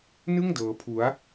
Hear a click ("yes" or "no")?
no